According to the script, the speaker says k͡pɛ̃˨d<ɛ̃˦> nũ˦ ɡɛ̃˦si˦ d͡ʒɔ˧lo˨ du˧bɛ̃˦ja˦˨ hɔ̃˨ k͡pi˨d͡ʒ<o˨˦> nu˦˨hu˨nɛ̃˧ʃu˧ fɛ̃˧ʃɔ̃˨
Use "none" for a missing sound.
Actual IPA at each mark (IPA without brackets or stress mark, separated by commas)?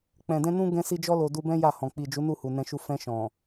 ɛ̃˧, u˨˦